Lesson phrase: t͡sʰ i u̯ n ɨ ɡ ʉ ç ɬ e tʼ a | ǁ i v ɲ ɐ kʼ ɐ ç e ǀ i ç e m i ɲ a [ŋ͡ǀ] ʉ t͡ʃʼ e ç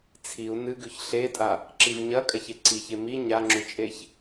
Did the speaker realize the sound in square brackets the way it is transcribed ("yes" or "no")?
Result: no